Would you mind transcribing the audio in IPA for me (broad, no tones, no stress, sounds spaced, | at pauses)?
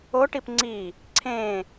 o ʈ i p ŋ͡ǀ i | ǀʰ ẽ